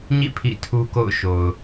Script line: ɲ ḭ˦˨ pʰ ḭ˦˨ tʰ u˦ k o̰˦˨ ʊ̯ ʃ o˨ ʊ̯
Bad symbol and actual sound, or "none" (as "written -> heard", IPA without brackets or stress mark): none